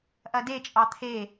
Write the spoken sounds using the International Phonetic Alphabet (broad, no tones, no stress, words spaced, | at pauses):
ʔɐdet͡ʃʼɑ t̪ʰe